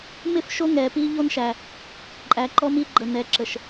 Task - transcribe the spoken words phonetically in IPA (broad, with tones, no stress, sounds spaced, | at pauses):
m ɪ˦˨ f ʃ o˦ ŋ ɛ˨ p i˦ ʎ o˦ n ʃ æ˨ | ǃʼ æ˨ ǃ ɔ˦ m i˦ ɡ͡ǃ ə˨ n ɛ˨ ǁ ə˨ ʃ